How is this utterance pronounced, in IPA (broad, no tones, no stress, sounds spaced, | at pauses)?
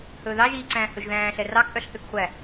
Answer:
h ɵː ð ɑ ʒ iː ǀ æ̃ː h ɵ ʒ ð æ̃ː ɬ ɛ r ɑ k ʔ œ ɬ θ ø k χʷ æ